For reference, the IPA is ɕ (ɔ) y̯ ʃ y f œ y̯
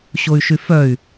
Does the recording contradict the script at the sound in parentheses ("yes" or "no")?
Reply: yes